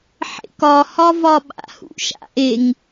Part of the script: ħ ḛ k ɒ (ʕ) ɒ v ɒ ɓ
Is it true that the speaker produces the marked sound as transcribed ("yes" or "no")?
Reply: no